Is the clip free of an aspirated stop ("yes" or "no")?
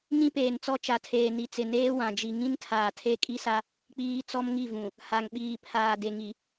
no